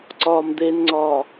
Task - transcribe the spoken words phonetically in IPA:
ǀ ɒː m d̪ e n ŋ͡ǀ ɒː

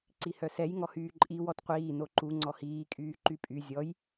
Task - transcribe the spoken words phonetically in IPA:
ǀ i h œ s ɛ j ŋ ɔ h yː ǃʼ i w ɔ t qʷ iː n o ǃ u ŋ͡ǀ ɔ h iː kʼ yː ǃ y pʼ y zʲ ɔ j

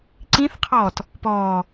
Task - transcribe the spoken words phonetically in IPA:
ǀ ĩ θ qʰ ɔː t | p ɔː

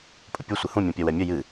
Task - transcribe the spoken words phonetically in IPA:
pʼ ə pʲ u sʷ ɨ h ũ mʲ ũ pʲ ɜ w ɛ mʲ ə j ɨ

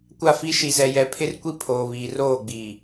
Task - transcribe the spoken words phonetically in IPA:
kʷ a˦˨ f i˦ ʃ i˨ z ɛ˨ j ɛ˨˦ pʰ ɪ˦ r kʷ i˦ pʰ oː˨ β iː˨ r oː˦˨ ɡ͡b iː˨

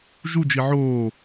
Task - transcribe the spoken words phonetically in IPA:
ʒ u d͡ʒ i ʕ oː

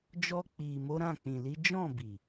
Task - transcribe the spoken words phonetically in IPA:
d͡ʒ ɔ˧ k͡p i˨ m o˨˦ ɾ ã˦˨ k͡p ĩ˨ l i˨˦ d͡ʒ ɔ̃˦˨ b i˨

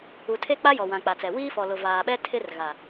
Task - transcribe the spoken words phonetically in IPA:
u˨ tʰ e˦ k͡p a˦ j ɔ˨ w ã˨ k͡p a˨ t͡s ɛ˨ w iː˦ f ɔ˨ l ʊ˨ v aː˨ ɓ ɛ˦ tʰ ɪ˦ r ɣ a˨

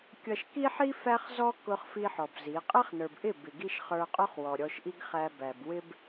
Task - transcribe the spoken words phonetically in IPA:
kʲ ʌ˧ ʃ k i˦ ħ i˦ f æ˧ χ z ɔ˧ k ʊ˧ χ f i˦ ħ ɔ˨ b z i˨˦ qʼ ɛ˦ χ n ə˞˨ b ʔ ɪ˦˨ b ɪ˨ ɡ i˧ ʃ χ ə˞˧ qʼ ʊ˦ χ w ɔ˨ ɾʲ ɔ˧ ʃ ʔ i˦ ɡ χ æ˧ b æ˨ b w ɪ˦ b

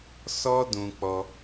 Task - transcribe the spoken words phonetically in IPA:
s ɔ˦ d ũ˧ k͡p ɔ˧

